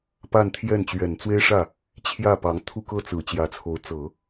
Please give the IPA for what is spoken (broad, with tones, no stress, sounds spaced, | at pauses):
p a˥˧ n t̪ʰ j ɛ˥˩ n t͡ɕ ɥ ɛ˨˩ n t͡s w e˥ ɪ̯ ʂ ä˥˩ | t͡ɕʰ j ä˥˩ p ɑ˧˥ ŋ t̪ʰ u˥˧ k ɤ˥˩ t͡s ɹ̩˨˩ t͡ɕ j ä˧˥ t͡sʰ o˧˥ ʊ̯ t͡s ɤ˨˩˦